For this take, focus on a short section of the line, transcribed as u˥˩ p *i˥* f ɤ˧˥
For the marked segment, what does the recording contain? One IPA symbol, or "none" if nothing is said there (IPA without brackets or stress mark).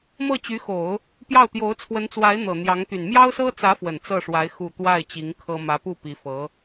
i˧˥